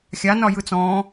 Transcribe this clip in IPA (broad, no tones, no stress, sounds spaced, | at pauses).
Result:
xʲ a n ɒ j ɯ t͡s ɔ̃ː